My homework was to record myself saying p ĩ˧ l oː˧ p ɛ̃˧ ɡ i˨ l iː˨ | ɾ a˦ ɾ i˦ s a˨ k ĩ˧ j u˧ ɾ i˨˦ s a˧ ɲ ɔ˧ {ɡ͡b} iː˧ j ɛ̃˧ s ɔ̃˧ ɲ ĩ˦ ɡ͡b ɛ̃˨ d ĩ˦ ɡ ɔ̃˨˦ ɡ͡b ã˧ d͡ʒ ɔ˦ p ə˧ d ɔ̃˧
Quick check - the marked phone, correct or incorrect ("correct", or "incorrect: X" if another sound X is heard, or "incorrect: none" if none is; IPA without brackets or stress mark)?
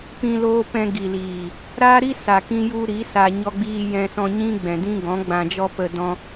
correct